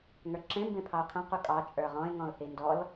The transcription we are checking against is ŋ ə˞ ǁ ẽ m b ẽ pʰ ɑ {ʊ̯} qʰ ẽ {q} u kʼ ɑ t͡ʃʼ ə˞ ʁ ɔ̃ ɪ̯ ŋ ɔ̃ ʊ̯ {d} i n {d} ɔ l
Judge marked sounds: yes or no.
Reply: yes, yes, no, yes

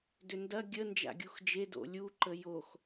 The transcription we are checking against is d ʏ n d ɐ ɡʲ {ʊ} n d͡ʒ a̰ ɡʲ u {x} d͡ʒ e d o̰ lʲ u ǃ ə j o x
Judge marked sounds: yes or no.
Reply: no, yes

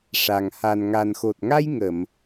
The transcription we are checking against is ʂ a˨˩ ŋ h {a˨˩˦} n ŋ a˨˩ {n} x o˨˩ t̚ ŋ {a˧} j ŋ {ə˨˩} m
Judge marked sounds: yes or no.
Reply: no, yes, yes, no

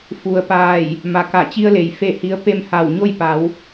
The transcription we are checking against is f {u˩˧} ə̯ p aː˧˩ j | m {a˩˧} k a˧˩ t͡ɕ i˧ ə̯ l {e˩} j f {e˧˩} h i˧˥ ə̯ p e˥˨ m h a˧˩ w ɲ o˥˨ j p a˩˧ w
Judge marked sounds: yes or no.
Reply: no, yes, yes, yes

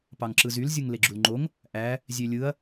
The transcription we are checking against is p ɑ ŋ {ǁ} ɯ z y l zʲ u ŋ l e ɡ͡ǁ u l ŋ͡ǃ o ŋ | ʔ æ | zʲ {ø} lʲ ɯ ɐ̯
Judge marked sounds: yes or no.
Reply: yes, yes

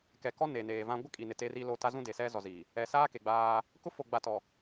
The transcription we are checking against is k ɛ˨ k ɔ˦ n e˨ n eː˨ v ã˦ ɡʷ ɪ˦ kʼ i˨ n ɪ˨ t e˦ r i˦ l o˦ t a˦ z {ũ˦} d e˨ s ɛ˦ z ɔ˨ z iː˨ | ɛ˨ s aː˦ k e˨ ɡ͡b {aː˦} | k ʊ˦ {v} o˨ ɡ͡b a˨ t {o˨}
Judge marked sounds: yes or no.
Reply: yes, yes, no, no

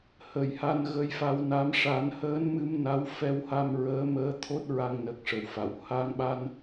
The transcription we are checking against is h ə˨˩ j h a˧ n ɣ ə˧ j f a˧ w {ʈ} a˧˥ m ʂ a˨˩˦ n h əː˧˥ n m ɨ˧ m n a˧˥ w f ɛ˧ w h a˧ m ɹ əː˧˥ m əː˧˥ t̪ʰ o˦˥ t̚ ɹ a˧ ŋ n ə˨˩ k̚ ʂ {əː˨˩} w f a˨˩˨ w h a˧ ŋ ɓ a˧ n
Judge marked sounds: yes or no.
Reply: no, no

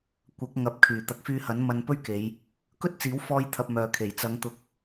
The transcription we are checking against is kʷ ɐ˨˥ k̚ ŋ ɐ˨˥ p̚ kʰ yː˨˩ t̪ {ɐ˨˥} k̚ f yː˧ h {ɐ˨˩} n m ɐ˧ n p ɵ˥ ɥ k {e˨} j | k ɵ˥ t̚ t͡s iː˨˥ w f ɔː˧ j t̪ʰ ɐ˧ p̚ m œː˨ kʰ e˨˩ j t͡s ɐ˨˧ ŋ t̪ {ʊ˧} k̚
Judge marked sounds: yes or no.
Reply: no, no, no, yes

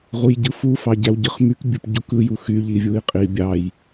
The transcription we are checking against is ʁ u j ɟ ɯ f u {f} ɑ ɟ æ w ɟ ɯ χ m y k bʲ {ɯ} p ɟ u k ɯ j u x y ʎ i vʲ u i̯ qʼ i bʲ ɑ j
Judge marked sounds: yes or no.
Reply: yes, yes

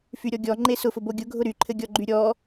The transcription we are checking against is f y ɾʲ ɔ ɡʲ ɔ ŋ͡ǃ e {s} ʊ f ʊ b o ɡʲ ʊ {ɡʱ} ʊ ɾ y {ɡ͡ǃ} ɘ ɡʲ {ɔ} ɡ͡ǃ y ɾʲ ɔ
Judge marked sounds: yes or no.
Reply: yes, yes, no, yes

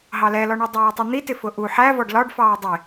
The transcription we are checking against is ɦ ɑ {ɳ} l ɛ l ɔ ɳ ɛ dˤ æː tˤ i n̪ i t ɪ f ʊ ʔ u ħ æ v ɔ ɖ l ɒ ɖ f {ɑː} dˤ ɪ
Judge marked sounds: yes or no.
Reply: no, yes

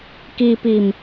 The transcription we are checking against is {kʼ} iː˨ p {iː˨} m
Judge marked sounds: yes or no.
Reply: no, yes

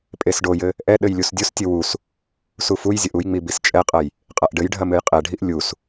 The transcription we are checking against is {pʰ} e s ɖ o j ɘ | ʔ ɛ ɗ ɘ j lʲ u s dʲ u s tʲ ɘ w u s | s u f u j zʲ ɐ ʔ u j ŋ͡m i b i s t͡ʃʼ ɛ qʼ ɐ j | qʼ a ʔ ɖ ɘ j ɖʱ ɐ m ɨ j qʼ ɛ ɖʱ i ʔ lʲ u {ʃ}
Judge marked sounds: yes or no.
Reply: no, no

